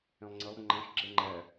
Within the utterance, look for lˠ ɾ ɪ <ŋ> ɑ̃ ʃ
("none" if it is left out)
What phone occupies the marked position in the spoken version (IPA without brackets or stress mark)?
ŋ͡ǃ